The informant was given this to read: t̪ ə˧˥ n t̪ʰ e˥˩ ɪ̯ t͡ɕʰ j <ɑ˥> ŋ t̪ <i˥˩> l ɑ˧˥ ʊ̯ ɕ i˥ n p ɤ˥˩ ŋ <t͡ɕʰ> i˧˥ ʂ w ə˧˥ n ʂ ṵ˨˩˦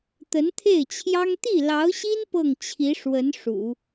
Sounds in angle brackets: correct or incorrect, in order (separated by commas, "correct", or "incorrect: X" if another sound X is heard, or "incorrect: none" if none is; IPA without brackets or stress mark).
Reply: correct, correct, correct